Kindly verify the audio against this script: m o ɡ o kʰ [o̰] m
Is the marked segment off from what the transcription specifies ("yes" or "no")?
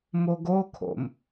no